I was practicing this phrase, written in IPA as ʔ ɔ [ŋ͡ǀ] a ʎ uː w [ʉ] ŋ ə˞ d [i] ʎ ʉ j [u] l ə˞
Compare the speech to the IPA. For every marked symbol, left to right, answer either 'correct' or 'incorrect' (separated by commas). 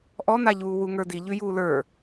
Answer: incorrect, incorrect, correct, incorrect